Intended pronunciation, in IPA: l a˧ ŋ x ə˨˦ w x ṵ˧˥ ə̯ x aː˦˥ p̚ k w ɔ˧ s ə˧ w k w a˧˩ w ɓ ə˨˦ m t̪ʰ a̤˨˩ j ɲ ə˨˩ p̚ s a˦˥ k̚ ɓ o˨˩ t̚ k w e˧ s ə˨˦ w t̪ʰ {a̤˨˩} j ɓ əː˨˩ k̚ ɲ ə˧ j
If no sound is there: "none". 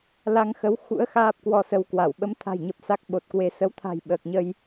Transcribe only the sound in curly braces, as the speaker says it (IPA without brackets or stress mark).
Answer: a̤˨˩